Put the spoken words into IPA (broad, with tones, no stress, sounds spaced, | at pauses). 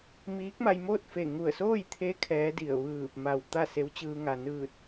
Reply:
m iː˧˥ k̚ m a˧ j m oː˥˨ t̚ f e˧˩ ŋ u˧˩ ə̯ s oː˥˨ j t̪ʰ e˧˥ kʰ ɛː˧˥ d i˧˩ ə̯ ʋ ɯː˧˩ p̚ m a˧˩ w t̪ a˥˨ s e˧˥ w t͡ɕ ɯː˧ ŋ a˩ n ɯː˧˩ t̚